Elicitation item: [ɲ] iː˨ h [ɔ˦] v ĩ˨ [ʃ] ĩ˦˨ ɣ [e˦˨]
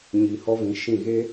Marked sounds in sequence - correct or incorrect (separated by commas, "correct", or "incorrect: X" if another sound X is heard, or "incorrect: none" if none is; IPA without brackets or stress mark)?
correct, correct, correct, incorrect: e˦